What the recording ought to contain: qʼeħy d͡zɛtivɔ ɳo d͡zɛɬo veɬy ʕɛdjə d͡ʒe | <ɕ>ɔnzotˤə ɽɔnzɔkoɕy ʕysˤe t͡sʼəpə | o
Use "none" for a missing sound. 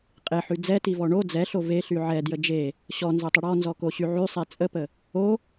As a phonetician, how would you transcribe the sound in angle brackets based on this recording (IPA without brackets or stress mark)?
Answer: ɕ